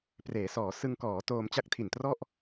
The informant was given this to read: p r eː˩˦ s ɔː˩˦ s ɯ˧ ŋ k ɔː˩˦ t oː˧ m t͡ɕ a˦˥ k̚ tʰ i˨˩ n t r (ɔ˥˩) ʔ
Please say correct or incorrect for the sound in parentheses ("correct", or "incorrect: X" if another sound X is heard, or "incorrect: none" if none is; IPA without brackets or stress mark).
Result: correct